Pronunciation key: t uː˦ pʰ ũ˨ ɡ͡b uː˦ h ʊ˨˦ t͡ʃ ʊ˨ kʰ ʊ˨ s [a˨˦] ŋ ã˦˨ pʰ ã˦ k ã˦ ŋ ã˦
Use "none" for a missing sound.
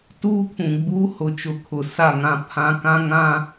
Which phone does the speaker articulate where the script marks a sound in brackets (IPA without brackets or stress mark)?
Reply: a˦˨